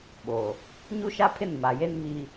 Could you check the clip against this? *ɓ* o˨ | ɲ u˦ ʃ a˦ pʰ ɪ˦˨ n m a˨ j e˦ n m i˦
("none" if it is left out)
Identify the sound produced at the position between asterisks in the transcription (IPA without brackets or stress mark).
ɓ